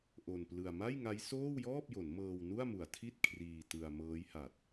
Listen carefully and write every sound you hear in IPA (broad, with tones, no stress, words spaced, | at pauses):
ʔo˧nplɯ˧a̯ ma˥˩jŋa˦˥j soː˥˩wjɔː˥˩p̚jo˩˦n mɤː˧wnu˥˩a̯mu˨˩a̯tʰi˥˩t̚ kʰriː˧ tɯ˧a̯ mɤː˦˥jha˨˩t̚